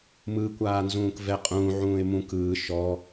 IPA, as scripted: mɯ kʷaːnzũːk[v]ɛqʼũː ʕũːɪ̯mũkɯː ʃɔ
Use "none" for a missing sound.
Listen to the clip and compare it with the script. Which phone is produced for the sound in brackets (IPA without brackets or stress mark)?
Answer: v